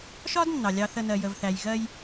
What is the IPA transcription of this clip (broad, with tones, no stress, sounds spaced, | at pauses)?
ʃ ɒ˦ d nː ɑ˨ lʲ ɑ˧ θ ə˧ n ɜ˨ j ə˨ v θ æ˨ j ɣ ɜ˧ j